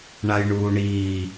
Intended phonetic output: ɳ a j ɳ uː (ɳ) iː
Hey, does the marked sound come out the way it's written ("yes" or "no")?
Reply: yes